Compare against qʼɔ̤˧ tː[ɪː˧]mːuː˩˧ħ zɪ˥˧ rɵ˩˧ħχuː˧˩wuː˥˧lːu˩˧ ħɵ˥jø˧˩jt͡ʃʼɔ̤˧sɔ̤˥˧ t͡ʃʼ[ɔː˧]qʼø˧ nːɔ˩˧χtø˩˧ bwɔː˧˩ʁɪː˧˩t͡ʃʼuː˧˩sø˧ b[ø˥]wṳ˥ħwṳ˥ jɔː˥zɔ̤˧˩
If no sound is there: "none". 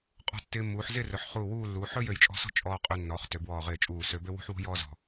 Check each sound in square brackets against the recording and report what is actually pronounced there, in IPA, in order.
ɪː˧, ɔː˧, ø˥

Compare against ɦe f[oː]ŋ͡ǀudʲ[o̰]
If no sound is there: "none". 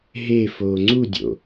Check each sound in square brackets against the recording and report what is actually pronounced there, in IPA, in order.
oː, o̰

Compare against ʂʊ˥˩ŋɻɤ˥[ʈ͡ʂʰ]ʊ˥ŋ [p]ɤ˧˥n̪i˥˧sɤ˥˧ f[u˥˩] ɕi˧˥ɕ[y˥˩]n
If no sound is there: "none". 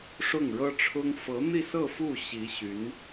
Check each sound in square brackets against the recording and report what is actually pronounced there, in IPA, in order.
ʈ͡ʂʰ, f, u˥˩, y˧˥

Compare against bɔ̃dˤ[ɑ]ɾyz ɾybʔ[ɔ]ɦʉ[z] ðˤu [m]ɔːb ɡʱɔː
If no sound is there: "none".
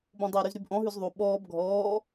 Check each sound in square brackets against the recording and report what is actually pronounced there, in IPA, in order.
ɑ, ɔ̃, z, ɓ

